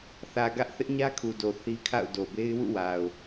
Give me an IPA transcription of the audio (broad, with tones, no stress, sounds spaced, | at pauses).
θ ä˨ ɡ ä˦ ʔ θ ɪ˦ ʔ ɲ ä˦ kʰ u˨ d o˨ θ i˦ kʰ a̰˦˨ ʊ̯ d o˨ b e˦ ɪ̯ w ṵ˦˨ w a˨ ʊ̯